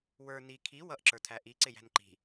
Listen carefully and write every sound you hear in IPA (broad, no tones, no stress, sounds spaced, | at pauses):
w ə˞ n i kʰ i w ʌ ʔ ǁ ə˞ tʰ æ ʔ i ǀ ɪ j æ̤ n ǃ i̤